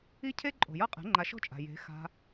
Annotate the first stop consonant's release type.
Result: aspirated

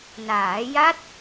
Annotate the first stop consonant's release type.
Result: plain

